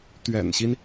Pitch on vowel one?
low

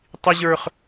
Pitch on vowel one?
high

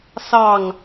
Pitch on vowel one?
falling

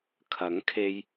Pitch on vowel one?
rising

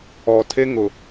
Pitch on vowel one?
low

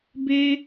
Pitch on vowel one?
high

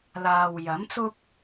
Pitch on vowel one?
low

